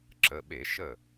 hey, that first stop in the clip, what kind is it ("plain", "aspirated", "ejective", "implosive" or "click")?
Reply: click